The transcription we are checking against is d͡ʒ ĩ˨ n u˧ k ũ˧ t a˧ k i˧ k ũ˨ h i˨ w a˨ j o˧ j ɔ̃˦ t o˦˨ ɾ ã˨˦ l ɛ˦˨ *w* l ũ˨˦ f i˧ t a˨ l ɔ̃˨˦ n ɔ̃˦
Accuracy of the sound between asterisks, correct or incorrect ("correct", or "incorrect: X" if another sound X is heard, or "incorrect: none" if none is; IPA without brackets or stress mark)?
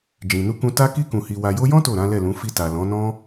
incorrect: none